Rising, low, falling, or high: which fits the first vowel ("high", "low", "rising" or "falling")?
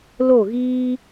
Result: falling